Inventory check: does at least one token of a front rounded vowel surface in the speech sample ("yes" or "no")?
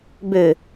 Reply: yes